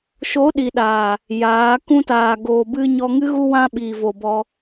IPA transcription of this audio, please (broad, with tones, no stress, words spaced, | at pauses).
ʃo˨˦ɗi˨ɗaː˨ | jaː˨˦ kũ˧taː˨ ɡoː˨ bɨ˧ ɲɔ˧ŋɨ˦ ɣu˧wã˧ɓiː˨vo˨ bɔ˧